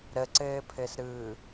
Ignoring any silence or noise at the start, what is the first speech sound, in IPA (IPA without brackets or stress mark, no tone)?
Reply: ɾ